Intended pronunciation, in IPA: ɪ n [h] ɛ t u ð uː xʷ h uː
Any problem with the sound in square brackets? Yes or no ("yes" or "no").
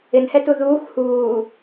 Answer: no